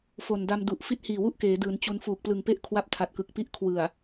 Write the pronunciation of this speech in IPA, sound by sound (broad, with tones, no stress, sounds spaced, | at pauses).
f o˨˩ n d a˧ m d u˨˩ ʔ f i˦˥ t̚ h iː˨˩ w u˥˩ ʔ k eː˩˦ d ɯː˩˦ n t͡ɕ u˧ n f uː˨˩ k̚ p l ɯ˨˩ ŋ p e˦˥ ʔ kʰ w a˦˥ p̚ tʰ a˨˩ t̚ k ɯ˨˩ k̚ p i˦˥ ʔ kʰ w ɯ˨˩ a̯